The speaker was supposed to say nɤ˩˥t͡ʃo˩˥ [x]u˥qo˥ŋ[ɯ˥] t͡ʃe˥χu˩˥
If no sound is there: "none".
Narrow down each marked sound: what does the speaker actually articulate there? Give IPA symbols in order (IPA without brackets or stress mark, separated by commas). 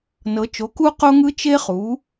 k, ɯ˥